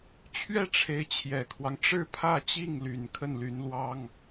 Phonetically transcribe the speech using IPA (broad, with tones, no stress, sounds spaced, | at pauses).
t͡ɕʰ ɥ ɛ˥˩ ʈ͡ʂʰ e˧˥ ɪ̯ t͡ɕʰ j ɛ˨˩ kʰ w ɑ˦ ŋ ʈ͡ʂ ɻ̩˥˧ pʰ ä˥˧ t͡ɕ i˥˩ ŋ l y˨˩ n kʰ ə˥˩ n l y˧˥ n l w ɑ˥ ŋ